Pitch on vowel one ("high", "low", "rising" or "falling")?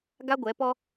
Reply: high